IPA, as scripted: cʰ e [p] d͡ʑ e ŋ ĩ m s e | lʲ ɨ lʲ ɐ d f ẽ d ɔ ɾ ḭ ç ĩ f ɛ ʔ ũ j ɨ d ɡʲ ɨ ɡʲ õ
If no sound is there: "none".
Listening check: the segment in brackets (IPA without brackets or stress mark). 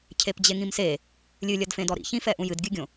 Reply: p